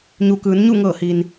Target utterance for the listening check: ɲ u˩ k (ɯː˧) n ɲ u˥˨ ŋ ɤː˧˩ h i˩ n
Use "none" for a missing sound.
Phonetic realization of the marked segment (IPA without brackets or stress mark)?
ɯː˩˧